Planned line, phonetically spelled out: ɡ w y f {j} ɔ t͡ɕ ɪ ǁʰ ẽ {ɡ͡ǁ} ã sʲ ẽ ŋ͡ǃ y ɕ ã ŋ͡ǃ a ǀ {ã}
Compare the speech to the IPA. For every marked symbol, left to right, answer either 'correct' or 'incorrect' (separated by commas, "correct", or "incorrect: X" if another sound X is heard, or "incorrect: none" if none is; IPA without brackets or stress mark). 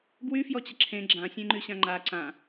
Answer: correct, correct, correct